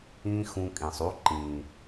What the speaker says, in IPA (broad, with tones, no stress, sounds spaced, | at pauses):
ĩ˧ x ũ˧ kʼ ĩ˨ sˤ u˦ ǃ ĩ˨